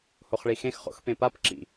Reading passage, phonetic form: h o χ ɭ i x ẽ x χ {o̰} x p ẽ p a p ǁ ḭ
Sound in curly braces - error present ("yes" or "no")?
no